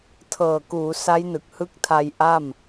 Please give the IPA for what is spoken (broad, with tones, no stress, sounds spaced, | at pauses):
tʰ ɤː˨˩ k uː˩˦ s a˦˥ j n ɯ˨˩ k̚ h ɯ˦˥ k̚ tʰ a˧ j ʔ a˥˩ m